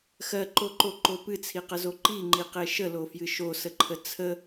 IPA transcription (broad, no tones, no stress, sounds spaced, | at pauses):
x ɜ ǃ o ǃ o ǃ o p ɨ t͡sʰ i q ə z o ǃ i ŋ͡ǃ i q e ʃ ə l o f j ɨ ʃ o s ə ǃʰ ə t͡sʰ ə